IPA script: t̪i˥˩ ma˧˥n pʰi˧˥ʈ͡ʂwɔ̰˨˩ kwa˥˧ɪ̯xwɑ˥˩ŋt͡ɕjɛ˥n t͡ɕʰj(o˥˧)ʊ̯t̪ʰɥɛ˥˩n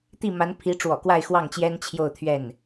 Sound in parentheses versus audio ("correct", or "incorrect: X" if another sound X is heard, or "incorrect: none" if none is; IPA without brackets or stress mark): correct